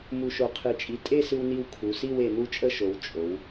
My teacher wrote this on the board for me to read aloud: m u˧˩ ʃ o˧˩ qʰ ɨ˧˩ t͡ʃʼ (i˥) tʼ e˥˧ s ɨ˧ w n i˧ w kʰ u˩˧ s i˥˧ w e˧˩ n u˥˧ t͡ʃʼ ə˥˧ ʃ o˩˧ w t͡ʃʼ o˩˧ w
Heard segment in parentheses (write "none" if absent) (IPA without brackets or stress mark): i˧